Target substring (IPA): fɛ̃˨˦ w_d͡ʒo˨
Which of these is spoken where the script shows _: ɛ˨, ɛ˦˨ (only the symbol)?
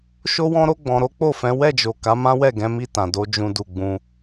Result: ɛ˦˨